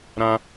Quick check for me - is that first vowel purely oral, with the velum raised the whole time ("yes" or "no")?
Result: no